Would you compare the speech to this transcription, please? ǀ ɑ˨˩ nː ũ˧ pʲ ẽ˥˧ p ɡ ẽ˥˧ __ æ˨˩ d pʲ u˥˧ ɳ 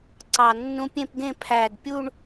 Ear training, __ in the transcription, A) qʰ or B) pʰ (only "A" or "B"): B